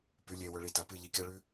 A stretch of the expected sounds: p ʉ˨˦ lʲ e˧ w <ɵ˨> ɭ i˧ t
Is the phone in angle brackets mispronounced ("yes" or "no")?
yes